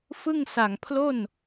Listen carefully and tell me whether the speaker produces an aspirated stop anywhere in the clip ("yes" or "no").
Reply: yes